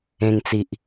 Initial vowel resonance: nasal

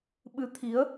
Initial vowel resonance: oral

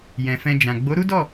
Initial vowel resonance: nasal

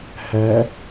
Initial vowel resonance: oral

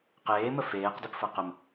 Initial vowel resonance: oral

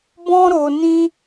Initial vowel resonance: nasal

